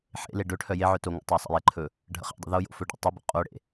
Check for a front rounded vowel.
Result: present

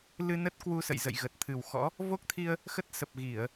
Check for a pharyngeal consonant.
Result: absent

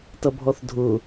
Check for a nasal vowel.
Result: absent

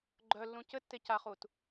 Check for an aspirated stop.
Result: absent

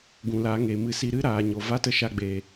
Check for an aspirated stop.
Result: absent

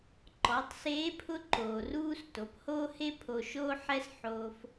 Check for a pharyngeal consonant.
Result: present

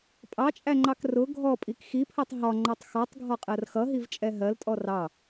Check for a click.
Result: present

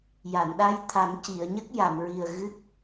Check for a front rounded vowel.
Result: absent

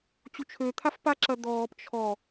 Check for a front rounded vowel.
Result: present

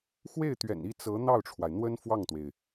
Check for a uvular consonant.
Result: absent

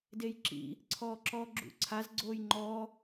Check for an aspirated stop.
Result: present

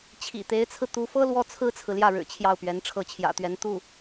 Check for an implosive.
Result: absent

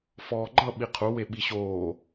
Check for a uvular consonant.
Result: present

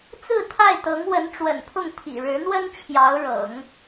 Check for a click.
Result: absent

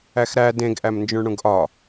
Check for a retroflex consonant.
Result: present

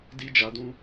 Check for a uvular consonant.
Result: absent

